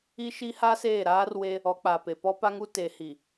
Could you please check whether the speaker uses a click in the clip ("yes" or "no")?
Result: no